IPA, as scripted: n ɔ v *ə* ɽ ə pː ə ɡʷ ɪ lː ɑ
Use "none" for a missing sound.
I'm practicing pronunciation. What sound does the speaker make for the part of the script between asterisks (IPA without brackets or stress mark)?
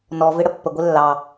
ɪ